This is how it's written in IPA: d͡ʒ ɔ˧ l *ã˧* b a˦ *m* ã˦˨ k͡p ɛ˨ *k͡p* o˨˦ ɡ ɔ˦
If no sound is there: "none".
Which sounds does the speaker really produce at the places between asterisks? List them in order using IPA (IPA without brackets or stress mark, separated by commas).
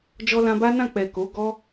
ã˧, n, k